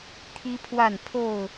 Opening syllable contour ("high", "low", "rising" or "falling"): high